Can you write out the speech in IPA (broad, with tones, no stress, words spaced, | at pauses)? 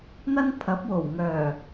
n̪ɐ˥npʰɐ˨˥p̚wo˨˩w ŋœː˨˩